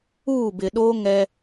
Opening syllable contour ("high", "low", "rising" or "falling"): falling